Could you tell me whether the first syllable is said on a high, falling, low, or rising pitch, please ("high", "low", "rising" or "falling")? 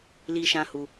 high